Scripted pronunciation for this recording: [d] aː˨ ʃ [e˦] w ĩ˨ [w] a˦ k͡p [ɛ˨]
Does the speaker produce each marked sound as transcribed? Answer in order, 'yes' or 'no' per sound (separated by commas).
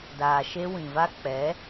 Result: yes, yes, no, no